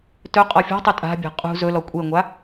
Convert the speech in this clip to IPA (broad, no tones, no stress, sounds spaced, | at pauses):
t ɵ qʼ ɔ fʲ ɔ̤ tˤ ɵ tʼ a̤ bʲ a̤ qʼ ṳ z ɵ l ɔ kʷʼ e ŋʷ a